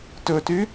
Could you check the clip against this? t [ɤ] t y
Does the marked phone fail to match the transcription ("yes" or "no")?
yes